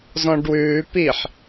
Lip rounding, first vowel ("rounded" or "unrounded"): rounded